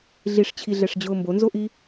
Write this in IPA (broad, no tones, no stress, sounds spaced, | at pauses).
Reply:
ɮ i ʂ t͡ɕʰ i ɮ ɛ ʂ d͡ʑ ʊː m b o n z o ʔ i